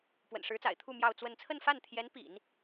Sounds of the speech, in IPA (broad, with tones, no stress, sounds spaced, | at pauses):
p w ə̰˨˩ n ʂ ɻ̩˧˥ t͡s a̰˨˩ ɪ̯ t̪ʰ u˥˧ m j ɑ˥˧ ʊ̯ t͡s w ə˥˧ n t͡sʰ ə˥˧ n f a˥˩ n t̪ʰ j ɛ˧˥ n p ḭ˨˩˦ n